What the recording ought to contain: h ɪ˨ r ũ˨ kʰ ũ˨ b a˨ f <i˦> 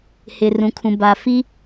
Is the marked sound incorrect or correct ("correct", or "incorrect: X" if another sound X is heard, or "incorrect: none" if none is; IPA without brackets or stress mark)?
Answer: correct